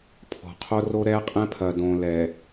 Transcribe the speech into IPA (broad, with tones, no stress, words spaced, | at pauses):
pʰɔ̤˨ qʰo˦ro˦ ɾɛː˦qʼɛ̃˦pʰɐ˨ dõː˨ lɛː˨